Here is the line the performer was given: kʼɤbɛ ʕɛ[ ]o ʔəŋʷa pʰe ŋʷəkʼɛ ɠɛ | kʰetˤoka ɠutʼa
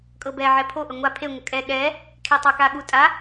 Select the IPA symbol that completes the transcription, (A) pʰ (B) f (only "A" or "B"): A